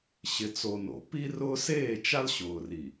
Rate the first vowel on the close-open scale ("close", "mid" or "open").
close